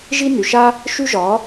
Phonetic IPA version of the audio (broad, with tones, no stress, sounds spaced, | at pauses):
ʒ i˥ n y˩ ʃ a˧ | ʃ y˥ ʒ ɒ˩˥